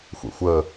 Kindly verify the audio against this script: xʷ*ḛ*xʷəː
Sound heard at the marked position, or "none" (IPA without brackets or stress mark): ḛ